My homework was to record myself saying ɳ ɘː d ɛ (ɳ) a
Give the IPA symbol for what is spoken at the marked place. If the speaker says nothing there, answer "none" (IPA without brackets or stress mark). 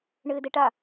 ʈ